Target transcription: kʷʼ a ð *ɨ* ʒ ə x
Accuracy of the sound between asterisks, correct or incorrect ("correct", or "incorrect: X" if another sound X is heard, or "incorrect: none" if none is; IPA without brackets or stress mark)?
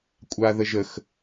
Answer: incorrect: ə